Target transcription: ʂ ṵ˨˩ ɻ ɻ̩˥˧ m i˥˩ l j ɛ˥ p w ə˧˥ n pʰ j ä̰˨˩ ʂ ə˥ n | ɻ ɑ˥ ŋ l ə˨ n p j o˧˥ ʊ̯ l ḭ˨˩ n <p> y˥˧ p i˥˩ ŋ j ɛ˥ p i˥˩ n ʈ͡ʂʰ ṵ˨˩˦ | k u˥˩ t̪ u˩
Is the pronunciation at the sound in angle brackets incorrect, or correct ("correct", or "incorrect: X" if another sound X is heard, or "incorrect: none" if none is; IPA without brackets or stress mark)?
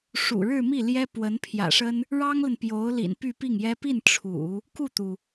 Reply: correct